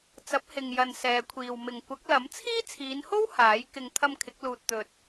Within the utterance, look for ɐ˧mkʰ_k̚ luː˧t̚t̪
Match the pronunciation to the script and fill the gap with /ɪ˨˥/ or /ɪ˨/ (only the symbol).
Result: ɪ˨˥